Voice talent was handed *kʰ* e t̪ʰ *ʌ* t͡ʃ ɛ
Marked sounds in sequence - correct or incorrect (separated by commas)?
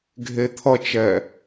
incorrect, correct